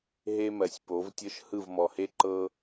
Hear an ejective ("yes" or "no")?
no